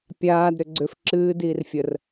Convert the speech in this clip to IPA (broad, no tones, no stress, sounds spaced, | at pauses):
pʲ aː d ɾ ʏ ɡ͡ǀ ʏ f ǁ ɨː d iː r fʲ ə r